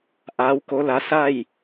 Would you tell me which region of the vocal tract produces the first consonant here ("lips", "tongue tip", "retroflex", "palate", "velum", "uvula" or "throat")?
throat